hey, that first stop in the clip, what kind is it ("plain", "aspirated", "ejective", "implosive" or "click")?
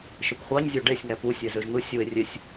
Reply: plain